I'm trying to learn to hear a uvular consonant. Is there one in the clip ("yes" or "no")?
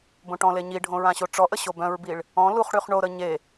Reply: yes